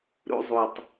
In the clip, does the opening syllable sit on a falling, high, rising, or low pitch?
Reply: high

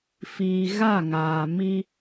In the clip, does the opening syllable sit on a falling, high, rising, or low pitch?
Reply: low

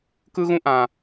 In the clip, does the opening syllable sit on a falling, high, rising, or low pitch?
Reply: high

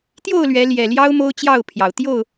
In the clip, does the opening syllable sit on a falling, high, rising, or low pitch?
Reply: falling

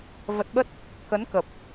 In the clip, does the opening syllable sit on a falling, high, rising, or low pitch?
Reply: low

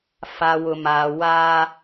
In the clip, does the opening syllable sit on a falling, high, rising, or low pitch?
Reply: low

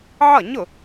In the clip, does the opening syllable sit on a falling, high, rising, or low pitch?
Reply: falling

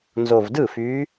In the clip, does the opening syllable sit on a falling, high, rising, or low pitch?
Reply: low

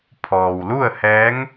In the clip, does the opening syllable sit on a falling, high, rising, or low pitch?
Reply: low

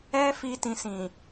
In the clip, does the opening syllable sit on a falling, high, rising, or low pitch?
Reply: high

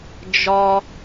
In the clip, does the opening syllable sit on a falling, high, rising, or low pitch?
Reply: high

